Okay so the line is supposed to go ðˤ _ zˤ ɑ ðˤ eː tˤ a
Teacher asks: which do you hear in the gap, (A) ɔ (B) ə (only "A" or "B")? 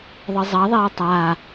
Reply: B